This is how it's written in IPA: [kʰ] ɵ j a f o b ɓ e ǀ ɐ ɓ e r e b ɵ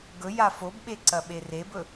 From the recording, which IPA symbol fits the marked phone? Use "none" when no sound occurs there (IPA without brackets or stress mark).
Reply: ɡ